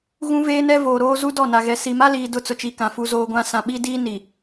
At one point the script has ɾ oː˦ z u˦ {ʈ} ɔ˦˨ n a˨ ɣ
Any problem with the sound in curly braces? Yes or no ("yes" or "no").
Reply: yes